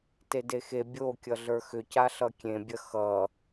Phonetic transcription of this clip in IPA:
tedexe bʲokʲʌ ɮə˞xʏca ɬʌkʲẽbʲɐ xʌ

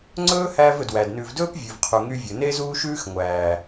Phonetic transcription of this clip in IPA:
ŋ͡ǀɵː˦hæː˧v ɵ˨dwæ˨dnʉː˧v dɵː˦p vʲʉ˨vqʰu˨ŋy˧ vʲɵ˨ne˦ zuː˦ʃʉː˦x ŋʷæː˨

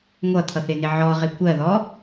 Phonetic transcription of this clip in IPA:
ŋʷʌt̪ʰʌθɪnɪ ʕɔʁɪ kʷɜðɔ

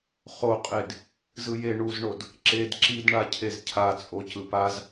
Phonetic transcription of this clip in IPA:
χoqʼed | zɯje ɳuzɳod | ǁed ǁid ɳacʰezcʰat͡sʼo cɯpaz

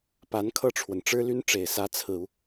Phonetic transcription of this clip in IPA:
pa˧˥nkʰɤ˥˩ʈ͡ʂʰwə˩n ʈ͡ʂɻ̩˥ly˥nʈ͡ʂe˨˩ɪ̯ sä˧˥t͡sʰɹ̩˨˩u˦

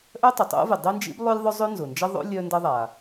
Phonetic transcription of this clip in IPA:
ʔœ˥tˤʏ˩tˤo̰˥vɪ˩ dˤe˥nd͡ʒḭ˥blˠʏ˥lʲ ðˤʊ˥zˤø˥nzʊ˩nd͡ʒɐ˥ ðˤo̰˥ lʲœ˥ndɐ˥ ðˤa˩

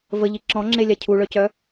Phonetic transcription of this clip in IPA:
vəʎi ǁɔ̃ŋ͡ǁelʲa cʰuɭœcœ

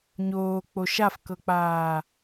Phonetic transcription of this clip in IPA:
ɲoːk͡po ʃafkɤk͡paː

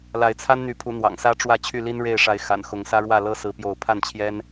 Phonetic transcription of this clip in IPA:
la˨˦ɪ̯t͡sʰa˦nn̪y˨˦pʰu˨˦ n̪wɑ̰˨˩ŋsä˦ʈ͡ʂwä˥˨ t͡ɕʰy˥˨li˦nɻe˥˨ɪ̯ʂa˨˦ɪ̯ xa̰˨˩nxʊ˨˦ŋ sä˦ɻwä˥˨lɤ˦ sɹ̩˦pjo˥˨ʊ̯ pʰa˥˨nt͡ɕʰjɛ˦n

